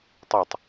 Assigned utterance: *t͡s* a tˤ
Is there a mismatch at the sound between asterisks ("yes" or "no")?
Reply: yes